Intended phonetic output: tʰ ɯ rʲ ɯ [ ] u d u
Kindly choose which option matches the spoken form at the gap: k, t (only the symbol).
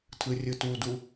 t